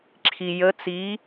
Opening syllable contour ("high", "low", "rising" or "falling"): low